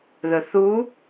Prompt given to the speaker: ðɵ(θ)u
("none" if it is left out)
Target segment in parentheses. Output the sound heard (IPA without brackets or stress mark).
θ